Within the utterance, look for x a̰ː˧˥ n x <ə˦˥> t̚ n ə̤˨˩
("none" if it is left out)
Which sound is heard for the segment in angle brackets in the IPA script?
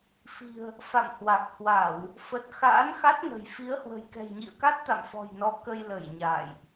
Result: a˦˥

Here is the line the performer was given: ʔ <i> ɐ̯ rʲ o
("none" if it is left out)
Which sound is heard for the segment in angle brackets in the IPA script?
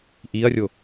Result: i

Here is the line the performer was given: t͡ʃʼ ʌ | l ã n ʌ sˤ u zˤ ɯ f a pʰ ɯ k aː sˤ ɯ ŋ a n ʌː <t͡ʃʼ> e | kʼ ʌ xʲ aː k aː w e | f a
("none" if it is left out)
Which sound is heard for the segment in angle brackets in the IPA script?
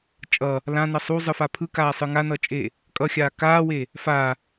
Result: t͡ʃʼ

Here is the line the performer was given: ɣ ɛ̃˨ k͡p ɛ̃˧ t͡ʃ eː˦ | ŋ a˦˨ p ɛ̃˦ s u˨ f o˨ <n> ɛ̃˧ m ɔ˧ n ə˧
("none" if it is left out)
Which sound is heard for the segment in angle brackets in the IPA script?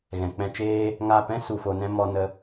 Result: n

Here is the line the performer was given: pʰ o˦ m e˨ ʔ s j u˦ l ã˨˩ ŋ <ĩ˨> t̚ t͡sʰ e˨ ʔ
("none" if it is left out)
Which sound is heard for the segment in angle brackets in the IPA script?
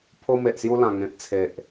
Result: ẽ˨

